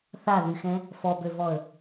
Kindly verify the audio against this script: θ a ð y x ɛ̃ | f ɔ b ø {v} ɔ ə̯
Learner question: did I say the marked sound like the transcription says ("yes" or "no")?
yes